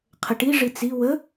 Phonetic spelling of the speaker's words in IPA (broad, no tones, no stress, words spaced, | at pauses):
qʰəʈi ʐit͡si wə